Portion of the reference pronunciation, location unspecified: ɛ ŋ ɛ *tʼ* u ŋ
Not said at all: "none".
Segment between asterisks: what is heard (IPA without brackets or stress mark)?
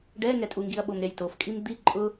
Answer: tʼ